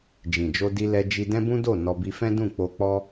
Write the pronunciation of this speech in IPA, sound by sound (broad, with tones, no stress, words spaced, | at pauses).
d͡ʒĩ˨d͡ʒo˧di˧lɛ˧ d͡ʒi˧dɛ̃˦bũ˦do˦˨ nɔ˧bi˧ fɛ̃˦dũ˦˨k͡po˧ k͡pɔ˦